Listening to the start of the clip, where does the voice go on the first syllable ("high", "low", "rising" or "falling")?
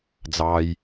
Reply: low